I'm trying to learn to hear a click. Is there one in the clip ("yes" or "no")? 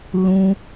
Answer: no